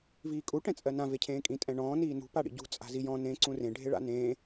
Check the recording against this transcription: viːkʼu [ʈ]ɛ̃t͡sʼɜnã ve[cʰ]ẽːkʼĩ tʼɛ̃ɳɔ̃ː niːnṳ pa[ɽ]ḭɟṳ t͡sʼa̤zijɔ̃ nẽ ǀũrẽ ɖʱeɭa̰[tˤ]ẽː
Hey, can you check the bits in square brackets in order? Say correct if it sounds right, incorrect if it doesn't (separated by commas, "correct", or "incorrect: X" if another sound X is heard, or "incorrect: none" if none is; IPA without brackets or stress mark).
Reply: correct, correct, correct, incorrect: n